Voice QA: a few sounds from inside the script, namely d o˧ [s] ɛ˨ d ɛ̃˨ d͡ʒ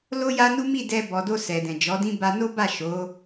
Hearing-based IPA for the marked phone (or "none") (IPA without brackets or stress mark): s